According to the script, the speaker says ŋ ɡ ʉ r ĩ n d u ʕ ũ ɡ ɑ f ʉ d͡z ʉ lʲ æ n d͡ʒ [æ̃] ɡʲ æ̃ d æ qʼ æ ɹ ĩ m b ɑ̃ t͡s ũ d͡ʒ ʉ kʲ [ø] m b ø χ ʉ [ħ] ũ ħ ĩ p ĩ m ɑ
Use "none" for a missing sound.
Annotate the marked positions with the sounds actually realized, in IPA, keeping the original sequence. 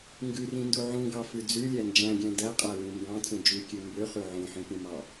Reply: æ̃, ø, ʕ

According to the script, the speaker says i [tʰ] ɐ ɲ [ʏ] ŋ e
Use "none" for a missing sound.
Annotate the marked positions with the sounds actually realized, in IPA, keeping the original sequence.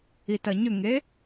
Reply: t, ʏ

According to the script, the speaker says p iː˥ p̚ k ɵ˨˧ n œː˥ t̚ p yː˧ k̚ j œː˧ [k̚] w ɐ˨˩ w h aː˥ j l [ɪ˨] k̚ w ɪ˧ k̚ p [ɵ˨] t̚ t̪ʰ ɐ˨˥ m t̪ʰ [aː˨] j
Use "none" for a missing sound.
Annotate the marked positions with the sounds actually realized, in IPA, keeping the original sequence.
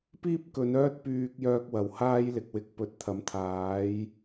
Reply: k̚, ɪ˨, ɵ˨, aː˨˥

